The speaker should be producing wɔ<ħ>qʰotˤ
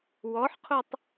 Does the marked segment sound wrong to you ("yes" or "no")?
no